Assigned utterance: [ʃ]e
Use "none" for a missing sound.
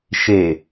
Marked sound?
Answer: ʃ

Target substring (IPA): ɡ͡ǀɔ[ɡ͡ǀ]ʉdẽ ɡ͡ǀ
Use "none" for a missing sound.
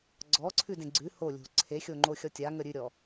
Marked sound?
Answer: ǀʰ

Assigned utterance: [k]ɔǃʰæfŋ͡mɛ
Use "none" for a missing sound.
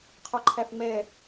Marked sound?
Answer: qʰ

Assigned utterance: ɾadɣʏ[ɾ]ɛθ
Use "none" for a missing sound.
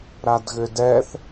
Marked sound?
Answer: d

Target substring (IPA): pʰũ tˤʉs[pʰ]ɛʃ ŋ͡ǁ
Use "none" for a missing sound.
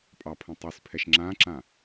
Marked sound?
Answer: pʰ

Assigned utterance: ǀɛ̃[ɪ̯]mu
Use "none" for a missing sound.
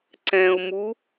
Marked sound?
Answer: ʊ̯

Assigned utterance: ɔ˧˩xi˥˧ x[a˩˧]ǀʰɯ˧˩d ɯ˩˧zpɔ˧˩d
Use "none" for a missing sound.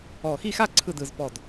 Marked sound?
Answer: a˥˧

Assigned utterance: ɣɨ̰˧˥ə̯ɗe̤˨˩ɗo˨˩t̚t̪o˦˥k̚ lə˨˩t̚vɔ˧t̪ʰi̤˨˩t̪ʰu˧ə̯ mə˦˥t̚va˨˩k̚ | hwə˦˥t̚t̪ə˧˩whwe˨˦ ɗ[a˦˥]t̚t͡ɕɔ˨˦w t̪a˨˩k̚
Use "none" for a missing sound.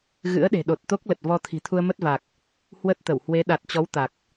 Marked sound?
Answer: a˨˩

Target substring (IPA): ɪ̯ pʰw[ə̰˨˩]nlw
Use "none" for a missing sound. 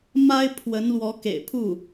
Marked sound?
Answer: ə˧˥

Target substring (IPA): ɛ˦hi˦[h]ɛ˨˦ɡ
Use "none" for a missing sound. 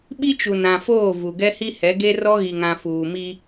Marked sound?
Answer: h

